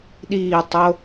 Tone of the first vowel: falling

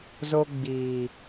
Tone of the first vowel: high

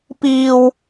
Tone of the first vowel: low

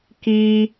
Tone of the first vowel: high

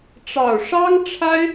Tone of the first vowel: low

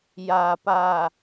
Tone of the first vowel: low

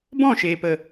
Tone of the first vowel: falling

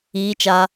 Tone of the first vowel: high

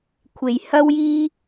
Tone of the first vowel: low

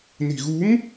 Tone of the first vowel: low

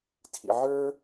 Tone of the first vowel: low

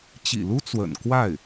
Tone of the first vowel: low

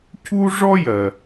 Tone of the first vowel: high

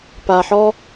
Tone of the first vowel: low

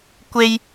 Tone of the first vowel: high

